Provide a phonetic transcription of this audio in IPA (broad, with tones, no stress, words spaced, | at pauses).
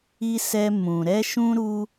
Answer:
i˦sɛ˦ mũ˧ ɾɛ˦ʃũ˦ɾu˦